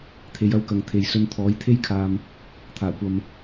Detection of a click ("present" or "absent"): absent